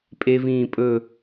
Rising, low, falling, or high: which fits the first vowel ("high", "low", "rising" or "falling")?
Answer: high